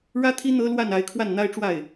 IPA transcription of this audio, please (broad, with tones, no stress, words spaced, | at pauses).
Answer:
ɻä˥t̪ʰi˥ n̪ɤ˥lwa˥˩n a˧˥ɪ̯kʰwa˥˩nn̪a˥ɪ̯ʈ͡ʂwa˥˩ɪ̯